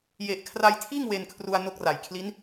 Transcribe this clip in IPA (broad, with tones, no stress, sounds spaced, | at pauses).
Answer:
j e˨˩ ʔ kʰ r a˧ j tʰ iː˥˩ ŋ w e˧ n kʰ r u˧ a̯ n o˦˥ k̚ r a˨˩ j kʰ l i˦˥ n